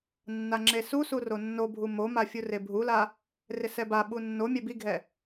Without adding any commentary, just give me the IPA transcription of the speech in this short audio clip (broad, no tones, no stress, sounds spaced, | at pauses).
nː a ŋ͡ǁ e s u s u r o nː o bʱ u m o m a fʲ u r e bʱ u l a | r ɪ s ɛ b a ɓ u nː o mʲ ɛ b i ɡʱ ɛ